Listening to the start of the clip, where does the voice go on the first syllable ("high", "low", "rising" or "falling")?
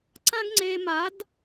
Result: high